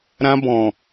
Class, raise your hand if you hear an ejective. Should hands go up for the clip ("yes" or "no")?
no